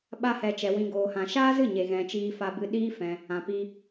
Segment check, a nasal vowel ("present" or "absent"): present